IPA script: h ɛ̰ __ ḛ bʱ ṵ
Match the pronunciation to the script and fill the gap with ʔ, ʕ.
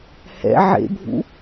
ʕ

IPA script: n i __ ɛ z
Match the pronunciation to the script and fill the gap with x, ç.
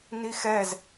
x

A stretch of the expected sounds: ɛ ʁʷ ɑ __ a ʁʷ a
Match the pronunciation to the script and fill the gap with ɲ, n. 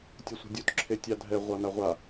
n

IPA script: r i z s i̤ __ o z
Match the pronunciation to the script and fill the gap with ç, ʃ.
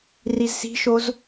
ʃ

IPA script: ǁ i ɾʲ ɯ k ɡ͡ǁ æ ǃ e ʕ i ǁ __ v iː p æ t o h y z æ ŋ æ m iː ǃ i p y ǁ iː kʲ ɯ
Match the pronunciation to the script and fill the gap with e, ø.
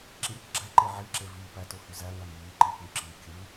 e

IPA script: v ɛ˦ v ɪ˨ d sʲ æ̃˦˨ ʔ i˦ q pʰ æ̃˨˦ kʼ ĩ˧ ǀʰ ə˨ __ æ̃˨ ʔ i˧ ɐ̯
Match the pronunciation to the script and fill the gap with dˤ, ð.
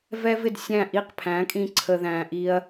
ð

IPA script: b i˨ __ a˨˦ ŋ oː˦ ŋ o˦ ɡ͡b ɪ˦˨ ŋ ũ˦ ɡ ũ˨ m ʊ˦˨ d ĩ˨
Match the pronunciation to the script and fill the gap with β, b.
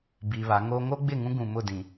β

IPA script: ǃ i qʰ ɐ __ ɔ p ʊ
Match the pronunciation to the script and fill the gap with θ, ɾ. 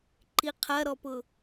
ɾ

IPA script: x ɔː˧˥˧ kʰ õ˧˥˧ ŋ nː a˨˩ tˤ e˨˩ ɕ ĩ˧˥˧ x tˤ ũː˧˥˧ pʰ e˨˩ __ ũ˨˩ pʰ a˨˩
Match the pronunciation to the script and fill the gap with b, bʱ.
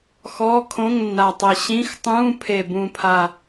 b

